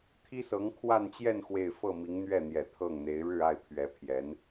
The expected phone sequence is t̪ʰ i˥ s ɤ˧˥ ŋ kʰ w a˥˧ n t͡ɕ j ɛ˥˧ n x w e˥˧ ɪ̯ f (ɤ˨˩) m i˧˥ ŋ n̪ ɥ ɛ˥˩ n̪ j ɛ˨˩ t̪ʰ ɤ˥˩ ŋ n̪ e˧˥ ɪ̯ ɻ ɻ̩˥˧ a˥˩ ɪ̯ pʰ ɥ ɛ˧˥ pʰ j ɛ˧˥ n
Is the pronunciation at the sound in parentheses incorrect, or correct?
incorrect